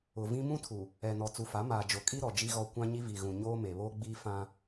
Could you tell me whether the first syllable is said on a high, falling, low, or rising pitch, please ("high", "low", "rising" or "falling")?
low